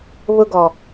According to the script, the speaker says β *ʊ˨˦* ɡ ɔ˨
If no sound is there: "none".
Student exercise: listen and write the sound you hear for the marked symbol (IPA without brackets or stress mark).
ʊ˦